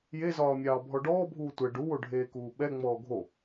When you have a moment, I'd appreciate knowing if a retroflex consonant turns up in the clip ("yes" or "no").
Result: yes